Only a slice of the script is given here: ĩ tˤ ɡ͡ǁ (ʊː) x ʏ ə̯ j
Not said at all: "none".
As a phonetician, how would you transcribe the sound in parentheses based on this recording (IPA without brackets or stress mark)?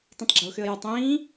ʊː